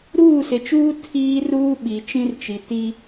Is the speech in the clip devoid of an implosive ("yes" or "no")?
no